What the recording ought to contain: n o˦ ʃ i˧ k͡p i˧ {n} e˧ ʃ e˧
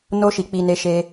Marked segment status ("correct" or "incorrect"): correct